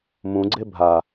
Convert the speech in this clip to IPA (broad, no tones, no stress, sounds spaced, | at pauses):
m ũ ɡ͡ǀ e bʱ a